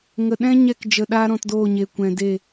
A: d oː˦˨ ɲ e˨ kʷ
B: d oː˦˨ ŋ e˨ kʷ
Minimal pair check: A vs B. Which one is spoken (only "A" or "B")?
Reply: A